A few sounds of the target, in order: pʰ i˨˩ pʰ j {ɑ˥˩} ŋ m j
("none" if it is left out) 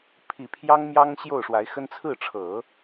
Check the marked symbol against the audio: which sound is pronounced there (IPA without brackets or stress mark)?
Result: ɑ˥